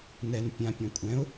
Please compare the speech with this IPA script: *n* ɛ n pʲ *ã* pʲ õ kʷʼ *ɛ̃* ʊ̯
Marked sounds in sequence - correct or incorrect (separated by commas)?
correct, correct, correct